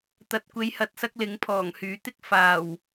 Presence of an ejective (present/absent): absent